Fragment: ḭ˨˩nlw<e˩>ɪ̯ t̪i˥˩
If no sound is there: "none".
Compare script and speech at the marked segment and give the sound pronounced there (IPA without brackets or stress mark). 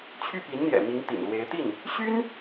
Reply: e˧˥